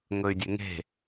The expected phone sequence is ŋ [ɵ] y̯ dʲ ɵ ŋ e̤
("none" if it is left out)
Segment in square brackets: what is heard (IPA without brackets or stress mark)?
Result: ɵ